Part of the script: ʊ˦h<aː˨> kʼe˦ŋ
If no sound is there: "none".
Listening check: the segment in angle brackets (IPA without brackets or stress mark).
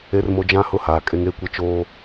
aː˨